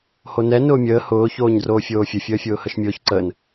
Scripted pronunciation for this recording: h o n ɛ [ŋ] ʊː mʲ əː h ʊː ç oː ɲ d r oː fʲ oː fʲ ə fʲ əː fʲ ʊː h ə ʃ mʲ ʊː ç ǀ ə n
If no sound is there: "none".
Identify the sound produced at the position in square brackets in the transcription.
n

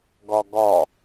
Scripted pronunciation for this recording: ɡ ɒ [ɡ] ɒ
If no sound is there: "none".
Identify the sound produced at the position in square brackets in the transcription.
ɡ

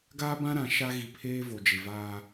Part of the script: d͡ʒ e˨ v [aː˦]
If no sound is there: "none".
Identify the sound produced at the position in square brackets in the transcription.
aː˦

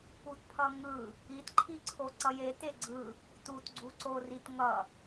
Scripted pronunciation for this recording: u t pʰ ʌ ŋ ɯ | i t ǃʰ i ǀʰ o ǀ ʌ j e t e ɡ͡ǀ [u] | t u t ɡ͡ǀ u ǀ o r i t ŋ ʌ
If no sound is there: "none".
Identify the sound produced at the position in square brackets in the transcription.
ɯ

